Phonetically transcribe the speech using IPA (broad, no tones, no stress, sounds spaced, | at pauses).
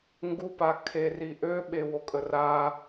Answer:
ŋ ɡ u p a kʰ e r i ʔ ø ɓ e w o kʼ ə r a